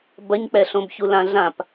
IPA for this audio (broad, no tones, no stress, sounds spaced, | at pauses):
b ɐ ɲ k͡p ɛ ɬ õ b ç u l ã ɮ ã p